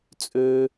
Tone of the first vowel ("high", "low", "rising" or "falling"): high